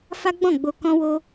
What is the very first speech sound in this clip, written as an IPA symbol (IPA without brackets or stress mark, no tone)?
f